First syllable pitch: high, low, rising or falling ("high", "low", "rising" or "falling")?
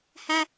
high